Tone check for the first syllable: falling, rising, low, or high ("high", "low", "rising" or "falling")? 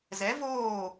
rising